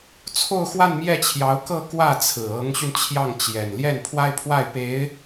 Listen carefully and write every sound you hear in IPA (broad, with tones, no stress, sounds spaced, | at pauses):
t͡sʰ o˥˧ ʊ̯ x w a˥˧ n m j ɛ˥˩ t͡ɕʰ j ɑ˧˥ ʊ̯ k ɤ˥˧ k w ä˥˩ t͡sʰ ɹ̩˨˩ ɤ˧˥ ŋ ɕ y˧ n t͡ɕʰ j ɑ˥˩ ŋ t͡ɕ j ɛ˨˩ n l j ɛ˥˩ n pʰ w a˥ ɪ̯ pʰ w a˥˩ ɪ̯ p e˧˥ ɪ̯